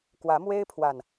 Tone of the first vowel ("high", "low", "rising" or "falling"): rising